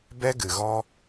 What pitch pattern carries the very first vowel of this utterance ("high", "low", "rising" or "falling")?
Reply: high